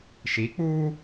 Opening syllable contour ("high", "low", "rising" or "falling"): rising